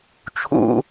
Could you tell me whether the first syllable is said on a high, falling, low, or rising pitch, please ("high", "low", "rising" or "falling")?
high